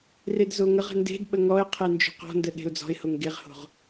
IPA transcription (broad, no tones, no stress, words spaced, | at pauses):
redzoŋəʁə̤ nde̤d ɓəŋɔɪ̯ qʰend͡ʒo̤qɔ̤ndə ɗe̤ʊ̯d͡zɔ̤ɪ̯hoŋ ɡeʁho̤ʁ